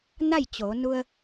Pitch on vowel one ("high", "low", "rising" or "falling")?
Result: falling